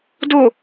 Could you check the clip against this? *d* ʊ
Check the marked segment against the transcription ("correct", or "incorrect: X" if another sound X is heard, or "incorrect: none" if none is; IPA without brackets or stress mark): correct